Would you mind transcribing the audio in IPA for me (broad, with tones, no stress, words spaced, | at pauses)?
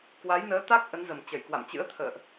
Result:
kwa˨˦jnəː˨˦t̪a˦˥k̚ ʔə˨˦nzə˨˩m t͡ɕə˧˩jkwa̰˧˨mt͡ɕɨ̰˧˥ə̯ t̪ʰə̰ː˧˨ʔ